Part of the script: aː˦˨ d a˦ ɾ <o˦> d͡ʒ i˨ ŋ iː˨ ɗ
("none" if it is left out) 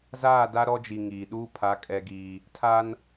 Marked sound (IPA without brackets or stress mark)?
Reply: ɔ˦